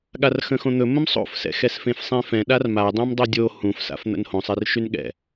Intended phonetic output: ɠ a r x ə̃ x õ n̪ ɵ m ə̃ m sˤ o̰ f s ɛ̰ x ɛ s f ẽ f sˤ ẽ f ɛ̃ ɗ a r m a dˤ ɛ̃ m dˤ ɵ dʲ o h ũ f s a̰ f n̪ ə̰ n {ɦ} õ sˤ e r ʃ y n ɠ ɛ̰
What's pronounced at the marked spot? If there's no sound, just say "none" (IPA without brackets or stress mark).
h